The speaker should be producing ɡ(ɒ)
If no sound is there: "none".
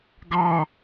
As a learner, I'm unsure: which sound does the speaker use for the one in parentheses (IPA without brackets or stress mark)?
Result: ɑ